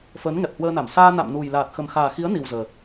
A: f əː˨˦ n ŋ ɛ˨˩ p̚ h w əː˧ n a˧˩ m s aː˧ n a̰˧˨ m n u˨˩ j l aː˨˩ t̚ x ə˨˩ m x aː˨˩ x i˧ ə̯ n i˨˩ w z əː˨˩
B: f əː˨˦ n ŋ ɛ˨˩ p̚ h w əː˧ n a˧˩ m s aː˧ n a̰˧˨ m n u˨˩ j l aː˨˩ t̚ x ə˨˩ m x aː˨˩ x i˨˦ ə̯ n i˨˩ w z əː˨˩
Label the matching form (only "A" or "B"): B